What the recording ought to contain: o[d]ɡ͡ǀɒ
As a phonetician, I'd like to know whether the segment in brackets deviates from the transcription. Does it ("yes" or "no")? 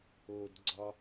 no